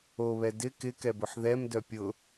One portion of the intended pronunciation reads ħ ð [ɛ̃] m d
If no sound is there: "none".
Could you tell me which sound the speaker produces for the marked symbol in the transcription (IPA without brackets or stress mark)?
ɛ